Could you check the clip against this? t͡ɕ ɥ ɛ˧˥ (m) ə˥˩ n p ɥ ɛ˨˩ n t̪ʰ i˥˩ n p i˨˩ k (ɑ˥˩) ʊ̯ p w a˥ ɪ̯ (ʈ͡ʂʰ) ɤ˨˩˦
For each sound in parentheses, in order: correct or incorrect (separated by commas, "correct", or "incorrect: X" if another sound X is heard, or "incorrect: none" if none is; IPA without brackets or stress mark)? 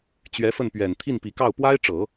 incorrect: f, correct, incorrect: ʈ͡ʂ